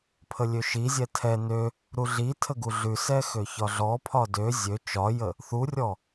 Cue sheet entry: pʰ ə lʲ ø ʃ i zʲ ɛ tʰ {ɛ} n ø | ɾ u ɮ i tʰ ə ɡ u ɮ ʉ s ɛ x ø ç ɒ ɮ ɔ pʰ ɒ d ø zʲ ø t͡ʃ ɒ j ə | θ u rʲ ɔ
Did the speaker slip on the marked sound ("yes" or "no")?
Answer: no